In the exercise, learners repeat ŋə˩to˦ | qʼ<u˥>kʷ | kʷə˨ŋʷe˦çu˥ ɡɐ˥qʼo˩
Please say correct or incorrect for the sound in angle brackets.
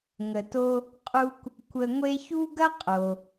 incorrect